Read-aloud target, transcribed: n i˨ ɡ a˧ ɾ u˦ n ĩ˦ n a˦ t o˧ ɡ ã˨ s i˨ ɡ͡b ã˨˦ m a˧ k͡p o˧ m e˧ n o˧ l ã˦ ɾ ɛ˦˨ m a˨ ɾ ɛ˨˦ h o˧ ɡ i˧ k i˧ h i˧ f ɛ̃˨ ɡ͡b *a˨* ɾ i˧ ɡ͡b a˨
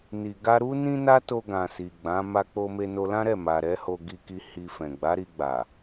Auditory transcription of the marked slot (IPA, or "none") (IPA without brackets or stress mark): a˨˦